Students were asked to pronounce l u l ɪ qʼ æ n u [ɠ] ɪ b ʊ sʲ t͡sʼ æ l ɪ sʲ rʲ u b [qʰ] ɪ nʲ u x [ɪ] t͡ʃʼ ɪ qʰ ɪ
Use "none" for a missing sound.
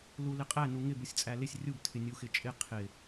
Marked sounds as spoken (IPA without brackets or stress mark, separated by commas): ŋ, tʰ, ɪ